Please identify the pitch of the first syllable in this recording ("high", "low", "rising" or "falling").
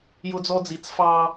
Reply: high